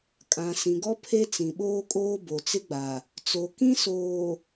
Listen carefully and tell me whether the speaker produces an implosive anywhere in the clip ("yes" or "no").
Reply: yes